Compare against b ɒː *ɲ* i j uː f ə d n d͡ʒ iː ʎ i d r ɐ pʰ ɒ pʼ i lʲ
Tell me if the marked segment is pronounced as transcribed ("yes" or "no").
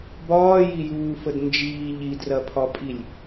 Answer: no